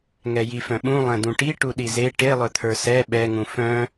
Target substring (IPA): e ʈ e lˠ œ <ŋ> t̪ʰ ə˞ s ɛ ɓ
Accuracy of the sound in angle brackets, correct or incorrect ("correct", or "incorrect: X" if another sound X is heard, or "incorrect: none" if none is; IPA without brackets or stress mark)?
incorrect: none